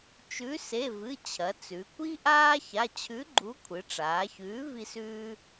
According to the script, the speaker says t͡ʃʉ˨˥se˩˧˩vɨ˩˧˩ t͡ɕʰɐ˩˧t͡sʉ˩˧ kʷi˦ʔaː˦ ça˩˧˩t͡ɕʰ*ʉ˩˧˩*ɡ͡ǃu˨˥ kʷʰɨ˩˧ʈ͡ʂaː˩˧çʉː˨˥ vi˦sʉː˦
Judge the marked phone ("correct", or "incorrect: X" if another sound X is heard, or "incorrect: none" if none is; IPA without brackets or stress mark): incorrect: ʉ˨˥